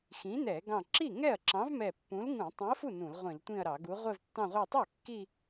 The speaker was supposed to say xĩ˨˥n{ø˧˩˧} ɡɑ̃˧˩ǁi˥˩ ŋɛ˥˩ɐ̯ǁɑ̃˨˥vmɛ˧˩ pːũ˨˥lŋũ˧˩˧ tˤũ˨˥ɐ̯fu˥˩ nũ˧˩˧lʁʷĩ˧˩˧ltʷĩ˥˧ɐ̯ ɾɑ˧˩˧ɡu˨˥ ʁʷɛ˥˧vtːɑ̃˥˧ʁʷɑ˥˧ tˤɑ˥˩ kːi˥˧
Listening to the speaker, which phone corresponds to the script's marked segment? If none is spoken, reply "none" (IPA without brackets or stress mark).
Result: ɛ˧˩˧